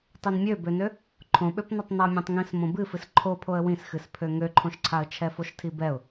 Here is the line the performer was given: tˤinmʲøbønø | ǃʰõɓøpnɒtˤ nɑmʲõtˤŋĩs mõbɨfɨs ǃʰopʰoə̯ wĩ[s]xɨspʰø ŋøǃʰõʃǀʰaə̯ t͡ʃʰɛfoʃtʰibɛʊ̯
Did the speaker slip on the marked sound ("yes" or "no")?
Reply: no